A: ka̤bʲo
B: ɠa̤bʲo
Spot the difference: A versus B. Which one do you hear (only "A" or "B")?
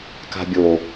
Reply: A